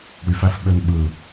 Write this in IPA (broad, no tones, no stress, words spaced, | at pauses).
ɽyf æfɓønɓɯ